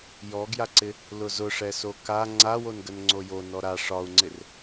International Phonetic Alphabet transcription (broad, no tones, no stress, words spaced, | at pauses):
jɔɡjaǀɪ | lʊzʊʂɛso ka ŋ͡ǀawonɡən ŋ͡ǀojo nɔɾa ʂɒu̯ŋ͡ǀɪr